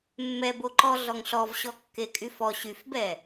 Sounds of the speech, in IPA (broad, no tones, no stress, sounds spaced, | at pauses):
mː ɛ b o ǃ ɔ ɮ ɔ ŋ ɬ ɔ v ɕ ɔ kː e kʼ y f ɔ ɕ y f b ɛ